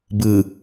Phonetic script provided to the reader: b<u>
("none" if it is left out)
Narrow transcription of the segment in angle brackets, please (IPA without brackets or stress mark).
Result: ɯ